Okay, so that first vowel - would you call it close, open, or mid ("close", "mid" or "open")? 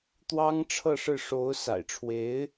open